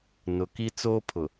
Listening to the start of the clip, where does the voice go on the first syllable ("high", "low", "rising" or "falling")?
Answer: low